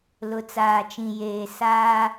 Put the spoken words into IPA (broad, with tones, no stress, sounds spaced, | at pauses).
l ʊ˨ t͡s aː˨ t͡ʃ ĩ˨ j eː˨ s aː˦